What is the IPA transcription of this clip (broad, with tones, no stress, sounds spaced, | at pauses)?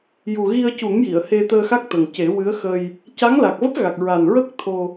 j u˨˩ ɣ i˧ ə̯ c u˨˩˦ ŋ j i˨˩˨ ə̯ h e˧ t̪ əː˧ x a˦˥ k̚ t̪ ə˨˩ ŋ c e˨˩˦ w ɨ˧˥ ə̯ x ə˧ j | c a˧˥ ŋ l a˨˩ k̚ v ə˦˥ k̚ ɣ a˨˩ k̚ ɹ a˨˩ n ɹ ə˦˥ k̚ t̪ʰ o˧